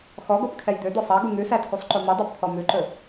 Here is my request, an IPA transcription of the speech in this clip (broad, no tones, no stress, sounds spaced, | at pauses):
x ɔ ɡ o p kʰ ɛ j d̪ ø d̪ ɔ sˤ ɑ ɡ u ŋ ʉ s æ tʰ u sˤ ǃ o m i dˤ ɑ p t̪ʰ ɔ m ʉ ǃ ɵ